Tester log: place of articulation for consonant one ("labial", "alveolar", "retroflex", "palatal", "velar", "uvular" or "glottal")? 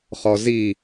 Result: uvular